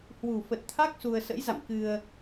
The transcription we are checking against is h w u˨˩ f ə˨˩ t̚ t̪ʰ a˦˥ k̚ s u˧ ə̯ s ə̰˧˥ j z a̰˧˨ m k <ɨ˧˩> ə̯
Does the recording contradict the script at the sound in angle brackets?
yes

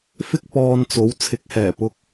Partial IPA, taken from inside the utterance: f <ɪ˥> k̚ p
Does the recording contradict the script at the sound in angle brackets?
no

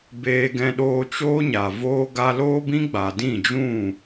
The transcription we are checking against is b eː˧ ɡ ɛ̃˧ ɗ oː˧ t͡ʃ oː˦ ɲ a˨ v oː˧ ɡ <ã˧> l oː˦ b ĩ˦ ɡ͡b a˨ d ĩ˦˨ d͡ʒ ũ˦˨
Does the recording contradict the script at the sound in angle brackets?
yes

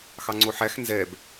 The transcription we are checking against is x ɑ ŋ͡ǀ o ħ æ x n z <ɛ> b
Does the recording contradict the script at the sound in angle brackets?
no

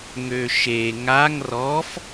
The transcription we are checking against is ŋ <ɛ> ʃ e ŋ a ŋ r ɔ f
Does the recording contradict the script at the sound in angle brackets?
yes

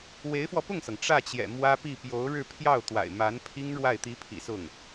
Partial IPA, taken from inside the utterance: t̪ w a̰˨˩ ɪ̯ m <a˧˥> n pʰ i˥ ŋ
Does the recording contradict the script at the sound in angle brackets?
no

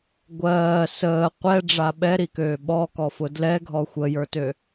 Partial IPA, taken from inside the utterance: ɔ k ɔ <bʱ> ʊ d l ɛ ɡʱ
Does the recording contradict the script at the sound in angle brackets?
yes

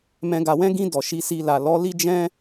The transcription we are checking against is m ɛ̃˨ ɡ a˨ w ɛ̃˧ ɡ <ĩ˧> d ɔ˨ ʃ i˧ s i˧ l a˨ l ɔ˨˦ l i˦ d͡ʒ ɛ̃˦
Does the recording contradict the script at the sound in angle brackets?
no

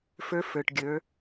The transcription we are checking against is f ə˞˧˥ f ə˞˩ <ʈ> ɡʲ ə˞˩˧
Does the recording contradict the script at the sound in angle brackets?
no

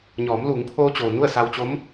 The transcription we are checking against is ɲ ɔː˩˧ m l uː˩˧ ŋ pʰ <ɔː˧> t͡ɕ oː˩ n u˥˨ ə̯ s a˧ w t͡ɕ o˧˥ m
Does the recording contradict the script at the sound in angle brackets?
yes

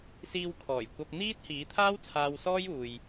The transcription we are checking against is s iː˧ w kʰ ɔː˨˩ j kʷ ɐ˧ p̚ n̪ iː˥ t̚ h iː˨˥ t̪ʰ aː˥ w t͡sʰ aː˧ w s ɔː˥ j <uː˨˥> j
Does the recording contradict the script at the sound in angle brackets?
yes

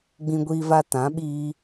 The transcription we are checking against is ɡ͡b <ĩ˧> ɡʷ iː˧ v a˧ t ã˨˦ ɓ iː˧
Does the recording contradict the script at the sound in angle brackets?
no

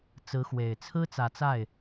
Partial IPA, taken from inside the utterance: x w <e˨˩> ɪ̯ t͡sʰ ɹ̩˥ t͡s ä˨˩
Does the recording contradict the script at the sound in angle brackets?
no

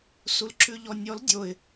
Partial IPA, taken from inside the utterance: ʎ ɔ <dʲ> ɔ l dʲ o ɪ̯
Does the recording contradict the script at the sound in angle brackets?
yes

